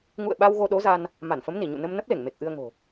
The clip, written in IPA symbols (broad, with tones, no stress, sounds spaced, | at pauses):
ŋ ṵ˧˨ ə̯ ɓ a˧ w ɣ o˧ ɗ o˨˦ z a˧ n | m a˧˩ n f ə˨˦ m n i˧˩ ɲ ṵ˧˨ n ə˧ m n ə˦˥ p̚ l e˧˩ ŋ m e˨˩ k̚ ʔ ɨ˧ ə̯ ŋ o̤˨˩